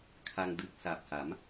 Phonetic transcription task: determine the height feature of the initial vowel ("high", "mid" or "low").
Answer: low